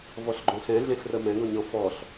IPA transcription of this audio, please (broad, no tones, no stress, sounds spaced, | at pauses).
v ɔ ɬ ɡ͡ǃ õ ɬ ɛ̃ ɮ ẽ ɬ r ə m ɛ̃ ɡ ɔ̃ ɲ ɔ̃ f ɔ ɬ